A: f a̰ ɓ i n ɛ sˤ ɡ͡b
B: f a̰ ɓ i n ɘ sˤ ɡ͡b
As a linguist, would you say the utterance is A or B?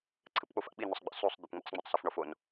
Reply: B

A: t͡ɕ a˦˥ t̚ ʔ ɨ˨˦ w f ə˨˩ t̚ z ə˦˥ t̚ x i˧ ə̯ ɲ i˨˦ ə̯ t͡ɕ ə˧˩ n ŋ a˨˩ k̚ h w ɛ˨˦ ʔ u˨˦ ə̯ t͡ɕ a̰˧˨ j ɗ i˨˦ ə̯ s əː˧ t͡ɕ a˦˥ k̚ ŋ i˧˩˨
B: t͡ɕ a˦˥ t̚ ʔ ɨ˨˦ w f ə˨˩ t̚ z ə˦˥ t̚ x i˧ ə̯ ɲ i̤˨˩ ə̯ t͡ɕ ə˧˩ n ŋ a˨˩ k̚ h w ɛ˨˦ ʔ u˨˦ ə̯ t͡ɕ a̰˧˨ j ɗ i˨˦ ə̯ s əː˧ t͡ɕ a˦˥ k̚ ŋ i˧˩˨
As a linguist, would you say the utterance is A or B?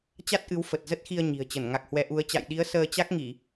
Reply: B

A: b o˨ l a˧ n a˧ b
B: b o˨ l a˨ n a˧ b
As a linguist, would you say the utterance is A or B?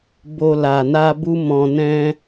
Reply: B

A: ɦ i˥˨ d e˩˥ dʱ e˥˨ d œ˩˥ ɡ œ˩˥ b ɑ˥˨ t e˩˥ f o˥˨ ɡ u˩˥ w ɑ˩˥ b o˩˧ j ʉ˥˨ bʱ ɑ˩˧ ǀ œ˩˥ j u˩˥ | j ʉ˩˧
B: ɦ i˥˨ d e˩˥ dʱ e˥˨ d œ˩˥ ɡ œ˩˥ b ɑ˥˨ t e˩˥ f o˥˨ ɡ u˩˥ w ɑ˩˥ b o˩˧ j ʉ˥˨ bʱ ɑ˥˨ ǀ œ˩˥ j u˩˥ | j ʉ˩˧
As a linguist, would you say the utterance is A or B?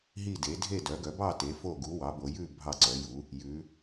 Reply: B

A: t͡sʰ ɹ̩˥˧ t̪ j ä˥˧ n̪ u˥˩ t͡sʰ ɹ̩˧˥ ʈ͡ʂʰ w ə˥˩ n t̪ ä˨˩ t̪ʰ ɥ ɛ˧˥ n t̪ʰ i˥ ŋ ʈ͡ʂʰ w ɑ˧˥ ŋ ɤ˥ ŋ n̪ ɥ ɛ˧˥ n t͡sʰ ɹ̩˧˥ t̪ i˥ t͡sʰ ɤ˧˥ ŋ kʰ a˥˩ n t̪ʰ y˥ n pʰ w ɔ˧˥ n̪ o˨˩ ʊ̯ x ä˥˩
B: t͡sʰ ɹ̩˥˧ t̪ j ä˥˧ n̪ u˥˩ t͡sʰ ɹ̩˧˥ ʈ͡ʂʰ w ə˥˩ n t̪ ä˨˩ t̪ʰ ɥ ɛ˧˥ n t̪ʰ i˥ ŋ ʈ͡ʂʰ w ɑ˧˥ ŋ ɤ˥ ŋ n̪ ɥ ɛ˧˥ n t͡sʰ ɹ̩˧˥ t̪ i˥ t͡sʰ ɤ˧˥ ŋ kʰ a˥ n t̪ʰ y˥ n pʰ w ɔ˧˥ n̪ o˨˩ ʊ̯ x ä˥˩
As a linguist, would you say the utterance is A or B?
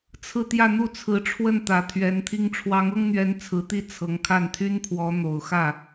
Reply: A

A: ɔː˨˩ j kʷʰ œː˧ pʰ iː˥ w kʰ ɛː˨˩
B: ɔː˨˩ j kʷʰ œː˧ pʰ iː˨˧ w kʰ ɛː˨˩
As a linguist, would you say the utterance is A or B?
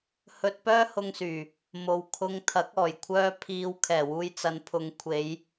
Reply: B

